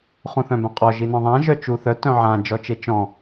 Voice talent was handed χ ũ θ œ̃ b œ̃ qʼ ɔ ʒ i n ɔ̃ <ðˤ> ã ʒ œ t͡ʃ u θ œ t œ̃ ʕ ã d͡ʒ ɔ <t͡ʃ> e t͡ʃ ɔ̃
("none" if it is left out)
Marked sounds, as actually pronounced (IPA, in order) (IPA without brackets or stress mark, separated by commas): ðˤ, t͡ʃ